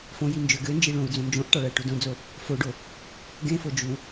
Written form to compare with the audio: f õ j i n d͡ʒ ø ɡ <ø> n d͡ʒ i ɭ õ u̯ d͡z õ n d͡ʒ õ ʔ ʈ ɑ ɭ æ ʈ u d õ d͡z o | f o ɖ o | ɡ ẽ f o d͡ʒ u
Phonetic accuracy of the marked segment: correct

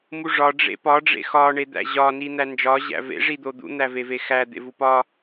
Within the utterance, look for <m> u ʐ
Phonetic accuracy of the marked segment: correct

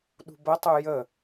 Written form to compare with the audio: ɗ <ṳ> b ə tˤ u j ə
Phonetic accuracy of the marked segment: correct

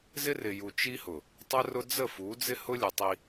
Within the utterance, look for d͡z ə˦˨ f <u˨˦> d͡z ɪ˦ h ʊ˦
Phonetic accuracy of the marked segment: correct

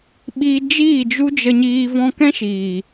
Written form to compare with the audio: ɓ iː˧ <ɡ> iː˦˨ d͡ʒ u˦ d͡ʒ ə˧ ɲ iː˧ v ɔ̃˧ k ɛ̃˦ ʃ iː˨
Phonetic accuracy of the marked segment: incorrect: d͡ʒ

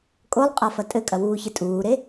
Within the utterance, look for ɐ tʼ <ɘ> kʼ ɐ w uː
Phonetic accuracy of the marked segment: correct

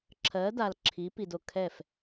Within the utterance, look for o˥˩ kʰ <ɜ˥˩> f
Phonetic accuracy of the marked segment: incorrect: ɛ˥˩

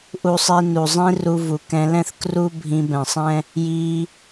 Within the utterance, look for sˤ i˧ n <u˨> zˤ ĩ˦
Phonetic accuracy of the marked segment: correct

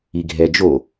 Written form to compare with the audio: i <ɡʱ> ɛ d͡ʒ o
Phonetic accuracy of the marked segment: correct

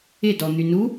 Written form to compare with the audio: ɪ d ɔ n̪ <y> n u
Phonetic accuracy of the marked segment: correct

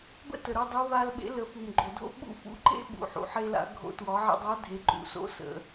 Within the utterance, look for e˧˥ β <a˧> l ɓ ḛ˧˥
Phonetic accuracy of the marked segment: correct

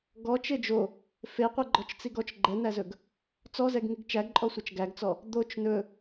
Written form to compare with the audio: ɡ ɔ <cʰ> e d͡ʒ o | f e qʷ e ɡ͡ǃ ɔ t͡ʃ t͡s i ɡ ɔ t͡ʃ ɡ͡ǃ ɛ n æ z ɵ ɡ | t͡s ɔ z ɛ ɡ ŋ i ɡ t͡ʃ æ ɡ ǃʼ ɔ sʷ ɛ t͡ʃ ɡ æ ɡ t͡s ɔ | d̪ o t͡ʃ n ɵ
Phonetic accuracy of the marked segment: incorrect: t͡ʃ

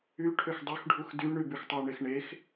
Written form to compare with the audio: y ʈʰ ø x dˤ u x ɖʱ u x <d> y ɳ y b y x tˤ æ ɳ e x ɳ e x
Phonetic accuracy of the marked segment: correct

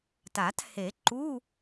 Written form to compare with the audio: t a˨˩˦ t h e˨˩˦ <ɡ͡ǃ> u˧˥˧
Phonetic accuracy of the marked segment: incorrect: ǃ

